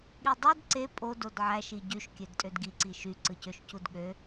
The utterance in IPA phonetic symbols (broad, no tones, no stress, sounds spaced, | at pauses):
ɠ i dˤ ɯ d ǀ e pʼ o d o d ʕ æ ʃ i ɟ y ʃ kʲ ø d tʼ ø d ɡ i ǀ i ʃ y ǀ ɯ c ø ʃ c u d ɠ ø